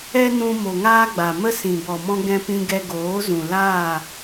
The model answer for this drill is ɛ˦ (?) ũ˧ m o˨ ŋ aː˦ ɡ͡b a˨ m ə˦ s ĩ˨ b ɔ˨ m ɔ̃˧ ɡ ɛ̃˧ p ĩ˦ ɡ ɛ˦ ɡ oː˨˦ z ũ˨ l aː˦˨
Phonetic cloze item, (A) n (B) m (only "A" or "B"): A